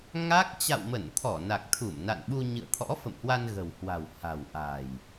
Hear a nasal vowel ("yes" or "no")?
no